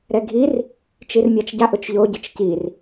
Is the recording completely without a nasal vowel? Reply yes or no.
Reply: yes